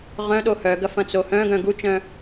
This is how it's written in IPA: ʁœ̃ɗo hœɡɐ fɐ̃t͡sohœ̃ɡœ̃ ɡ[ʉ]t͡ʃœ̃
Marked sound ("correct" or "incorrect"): incorrect